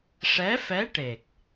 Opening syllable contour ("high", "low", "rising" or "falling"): rising